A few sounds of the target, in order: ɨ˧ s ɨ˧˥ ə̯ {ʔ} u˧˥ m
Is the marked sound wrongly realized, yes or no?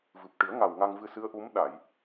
no